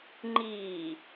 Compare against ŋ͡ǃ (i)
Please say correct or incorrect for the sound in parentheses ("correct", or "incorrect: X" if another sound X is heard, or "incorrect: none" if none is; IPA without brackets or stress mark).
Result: incorrect: iː